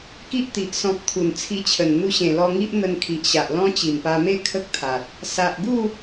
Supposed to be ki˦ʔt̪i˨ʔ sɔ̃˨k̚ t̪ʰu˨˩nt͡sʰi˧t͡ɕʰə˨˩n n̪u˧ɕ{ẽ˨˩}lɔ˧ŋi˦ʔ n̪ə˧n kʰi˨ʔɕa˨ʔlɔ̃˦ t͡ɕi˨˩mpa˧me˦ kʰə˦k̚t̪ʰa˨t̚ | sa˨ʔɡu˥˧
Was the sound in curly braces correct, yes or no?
yes